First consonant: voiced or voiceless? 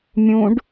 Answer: voiced